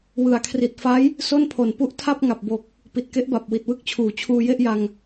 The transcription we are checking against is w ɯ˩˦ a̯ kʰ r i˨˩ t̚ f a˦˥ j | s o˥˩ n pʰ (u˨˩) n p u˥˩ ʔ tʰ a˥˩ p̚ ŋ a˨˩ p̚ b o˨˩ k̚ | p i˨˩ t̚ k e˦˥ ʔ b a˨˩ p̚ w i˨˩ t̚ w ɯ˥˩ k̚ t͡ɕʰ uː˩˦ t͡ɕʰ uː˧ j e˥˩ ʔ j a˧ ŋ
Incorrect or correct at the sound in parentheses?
incorrect: o˨˩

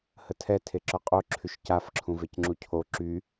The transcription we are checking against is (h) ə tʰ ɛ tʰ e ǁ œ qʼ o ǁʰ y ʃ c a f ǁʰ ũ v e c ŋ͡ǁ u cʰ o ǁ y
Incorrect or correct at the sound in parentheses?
correct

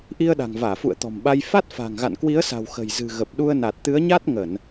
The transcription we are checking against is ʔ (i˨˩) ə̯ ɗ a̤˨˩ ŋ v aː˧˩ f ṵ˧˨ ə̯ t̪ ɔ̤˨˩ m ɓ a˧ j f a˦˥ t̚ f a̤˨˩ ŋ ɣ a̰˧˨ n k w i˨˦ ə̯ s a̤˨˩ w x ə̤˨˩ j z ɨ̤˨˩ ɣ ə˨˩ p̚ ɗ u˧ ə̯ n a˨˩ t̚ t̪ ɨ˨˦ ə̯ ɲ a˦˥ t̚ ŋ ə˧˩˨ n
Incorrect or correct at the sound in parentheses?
incorrect: i˧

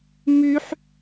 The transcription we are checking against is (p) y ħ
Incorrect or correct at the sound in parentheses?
incorrect: m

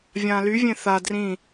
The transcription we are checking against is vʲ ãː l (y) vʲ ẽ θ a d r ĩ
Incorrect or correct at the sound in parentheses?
correct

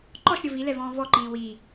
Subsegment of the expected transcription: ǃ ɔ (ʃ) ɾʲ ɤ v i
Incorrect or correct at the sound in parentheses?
correct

